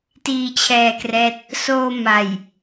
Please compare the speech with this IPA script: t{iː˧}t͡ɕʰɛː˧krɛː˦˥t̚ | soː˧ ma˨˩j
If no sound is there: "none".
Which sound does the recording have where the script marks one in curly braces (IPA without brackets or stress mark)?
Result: iː˧